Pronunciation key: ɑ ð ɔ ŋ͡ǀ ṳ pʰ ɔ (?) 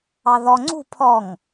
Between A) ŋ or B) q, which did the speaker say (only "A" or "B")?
A